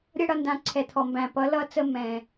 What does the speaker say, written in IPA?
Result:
ɾʲ ʌ˦˨ ɽ ʌ˦˨ n d ã˩˧ ǀʰ ɛ˨˩ t̪ʰ ɔ˨˩ m b æ̃˨˩ p ʌ˨˥ l ʌ˦ t͡s ə˦˨ m ɛ̃˨˩

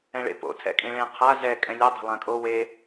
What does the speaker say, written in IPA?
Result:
ɛ̃ ɭ ḛ p o̰ tʰ ɛ̰ kʼ ĩ ɭ ẽ qʰ a z ɛ kʼ ɛ̃ lʲ ɛ dˤ e̤ lˠ ã kʼ o w e

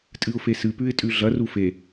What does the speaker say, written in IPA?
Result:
tʼ ɨ ʊ̯ f e s ɨ p ʉ ɪ̯ tʼ ʉ ɮ ɐ r u f e

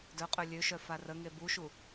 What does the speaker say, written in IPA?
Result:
d œ qʼ ø lʲ ø ʃ œ f a r ə ŋ e b u ʃ u

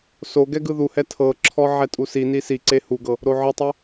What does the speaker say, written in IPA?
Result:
s o ɡ ɛ ɡ ɯ ð u h ɛ tʰ ɤ ǁʰ ɔ ʕ ɛ tʼ u s i n i s i ǀ e h u ɡ ɤ | ɾ o ʕ ɯ tˤ ɛ

